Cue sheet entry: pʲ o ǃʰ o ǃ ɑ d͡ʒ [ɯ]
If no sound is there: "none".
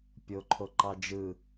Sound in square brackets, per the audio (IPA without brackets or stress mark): ɯ